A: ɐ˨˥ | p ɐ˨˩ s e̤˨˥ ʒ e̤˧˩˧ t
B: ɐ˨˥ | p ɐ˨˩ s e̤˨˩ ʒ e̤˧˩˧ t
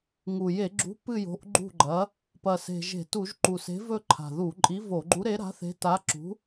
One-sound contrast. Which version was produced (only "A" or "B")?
B